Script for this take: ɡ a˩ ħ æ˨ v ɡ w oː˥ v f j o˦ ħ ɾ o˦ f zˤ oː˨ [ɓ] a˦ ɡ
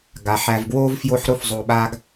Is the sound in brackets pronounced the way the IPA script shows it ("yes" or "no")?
yes